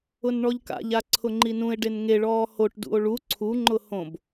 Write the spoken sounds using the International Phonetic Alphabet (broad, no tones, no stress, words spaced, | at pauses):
ʊnɳɔʎka̰ʎa ǀʰʊŋ͡ǃinũe̯ɖen ŋeɭɔː hoʈdṵo̯ ɭu ǀʰuŋ͡ǃʊ hõb